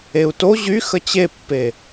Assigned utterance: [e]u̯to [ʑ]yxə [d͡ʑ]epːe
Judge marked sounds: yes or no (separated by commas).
yes, yes, no